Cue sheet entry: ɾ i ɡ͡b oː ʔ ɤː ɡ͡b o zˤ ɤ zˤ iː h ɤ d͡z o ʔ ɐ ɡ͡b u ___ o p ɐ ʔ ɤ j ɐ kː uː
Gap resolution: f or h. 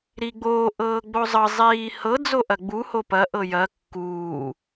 h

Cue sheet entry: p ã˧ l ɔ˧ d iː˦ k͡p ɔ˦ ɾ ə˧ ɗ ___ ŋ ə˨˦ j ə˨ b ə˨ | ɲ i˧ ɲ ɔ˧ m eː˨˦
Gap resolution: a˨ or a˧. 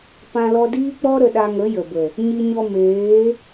a˧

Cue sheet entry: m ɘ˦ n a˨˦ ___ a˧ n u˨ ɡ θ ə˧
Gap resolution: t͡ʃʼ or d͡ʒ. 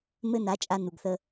t͡ʃʼ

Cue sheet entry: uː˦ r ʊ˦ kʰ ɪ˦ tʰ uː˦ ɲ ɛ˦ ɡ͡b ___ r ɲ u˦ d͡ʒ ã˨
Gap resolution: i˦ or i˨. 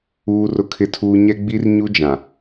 i˦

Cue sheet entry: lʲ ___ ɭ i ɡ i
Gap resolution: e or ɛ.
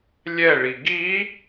ɛ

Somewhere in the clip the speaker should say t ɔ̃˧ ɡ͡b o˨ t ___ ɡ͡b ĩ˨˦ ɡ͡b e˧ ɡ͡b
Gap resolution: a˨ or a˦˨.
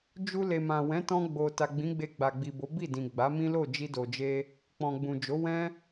a˨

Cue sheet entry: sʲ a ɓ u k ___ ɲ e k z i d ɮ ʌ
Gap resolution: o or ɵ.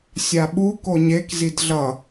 o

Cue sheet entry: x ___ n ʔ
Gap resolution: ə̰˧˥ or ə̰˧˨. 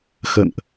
ə̰˧˨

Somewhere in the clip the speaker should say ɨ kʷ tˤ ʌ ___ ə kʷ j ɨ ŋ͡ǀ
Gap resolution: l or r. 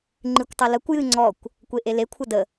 l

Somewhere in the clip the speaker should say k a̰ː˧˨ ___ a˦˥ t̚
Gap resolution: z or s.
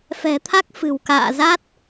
z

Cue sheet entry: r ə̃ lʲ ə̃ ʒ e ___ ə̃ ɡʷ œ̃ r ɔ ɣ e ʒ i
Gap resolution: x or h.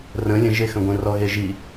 x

